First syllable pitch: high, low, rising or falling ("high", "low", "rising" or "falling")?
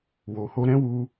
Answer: low